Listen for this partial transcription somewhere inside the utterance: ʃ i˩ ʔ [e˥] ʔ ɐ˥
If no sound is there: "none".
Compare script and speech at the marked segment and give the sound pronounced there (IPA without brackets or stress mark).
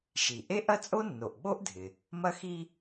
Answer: e˥